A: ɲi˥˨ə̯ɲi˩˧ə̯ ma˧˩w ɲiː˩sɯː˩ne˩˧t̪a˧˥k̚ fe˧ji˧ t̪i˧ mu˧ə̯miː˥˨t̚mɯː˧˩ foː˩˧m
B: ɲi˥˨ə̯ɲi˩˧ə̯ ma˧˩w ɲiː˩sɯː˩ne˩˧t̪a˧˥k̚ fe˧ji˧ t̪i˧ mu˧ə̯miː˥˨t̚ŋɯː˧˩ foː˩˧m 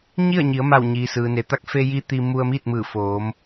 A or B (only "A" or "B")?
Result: A